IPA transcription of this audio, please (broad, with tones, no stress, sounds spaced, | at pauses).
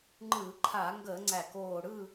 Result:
ŋ͡ǃ ɯː˧˩˧ ǃʰ a˧˩˧ ŋ ɡ əː˧˩˧ ŋ͡ǀ æ˧˩ k oː˧˩ ɽ ɯː˥˨